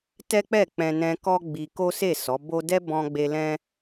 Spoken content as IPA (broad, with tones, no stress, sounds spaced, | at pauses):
t ɛ˦ k͡p ɛ˦˨ k͡p ɛ̃˧ n ɛ̃˧ k ɔ˦ ɡ͡b i˧ k o˦ s e˦˨ s ɔ˨˦ b o˦ d ɛ˦ b ɔ̃˧ ɡ͡b e˧ l ɛ̃˦